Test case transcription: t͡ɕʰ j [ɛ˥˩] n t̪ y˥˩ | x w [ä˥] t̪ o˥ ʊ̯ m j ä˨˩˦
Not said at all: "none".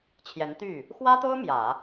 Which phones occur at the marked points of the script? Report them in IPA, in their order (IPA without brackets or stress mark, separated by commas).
ɛ˧˥, ä˥